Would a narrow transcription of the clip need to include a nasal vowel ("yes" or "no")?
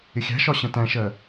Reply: yes